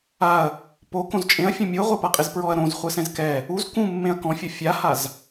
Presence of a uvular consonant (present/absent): present